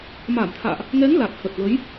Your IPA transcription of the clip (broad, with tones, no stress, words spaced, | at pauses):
ma˧˩mt̪ʰa̰ː˧˨ʔ | ŋɛ˨˦ŋ la˨˩t̚hə˨˩t̚ və˨˦j